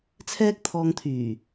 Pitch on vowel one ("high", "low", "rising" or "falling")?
high